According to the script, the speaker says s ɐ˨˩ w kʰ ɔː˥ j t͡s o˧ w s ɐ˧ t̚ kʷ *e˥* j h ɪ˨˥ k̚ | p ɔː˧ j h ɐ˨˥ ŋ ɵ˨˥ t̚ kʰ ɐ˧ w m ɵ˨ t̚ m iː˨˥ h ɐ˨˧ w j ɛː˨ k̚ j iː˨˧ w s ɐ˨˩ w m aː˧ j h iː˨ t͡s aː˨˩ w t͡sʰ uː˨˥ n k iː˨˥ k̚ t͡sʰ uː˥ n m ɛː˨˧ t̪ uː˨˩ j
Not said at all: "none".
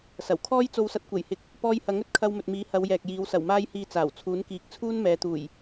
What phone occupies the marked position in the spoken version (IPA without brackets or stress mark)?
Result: e˨˩